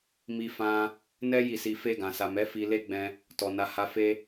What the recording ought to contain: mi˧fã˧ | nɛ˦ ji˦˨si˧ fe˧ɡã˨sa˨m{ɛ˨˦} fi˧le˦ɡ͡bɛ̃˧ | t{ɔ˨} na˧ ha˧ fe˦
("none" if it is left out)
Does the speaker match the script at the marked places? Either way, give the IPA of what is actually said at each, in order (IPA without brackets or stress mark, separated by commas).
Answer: ɛ˨˦, ɔ˨